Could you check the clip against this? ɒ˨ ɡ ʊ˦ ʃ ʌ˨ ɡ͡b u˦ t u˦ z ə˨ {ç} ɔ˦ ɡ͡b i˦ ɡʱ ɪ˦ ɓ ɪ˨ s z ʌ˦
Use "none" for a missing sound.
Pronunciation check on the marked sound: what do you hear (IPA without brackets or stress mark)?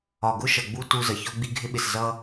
ç